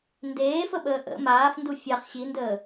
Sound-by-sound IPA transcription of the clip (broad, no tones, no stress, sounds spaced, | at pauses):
n d eː f ə ɓ əː ʔ ə̰ m aː f n d u fʲ a χ ɕ i n d əː